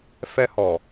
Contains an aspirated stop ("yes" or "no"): no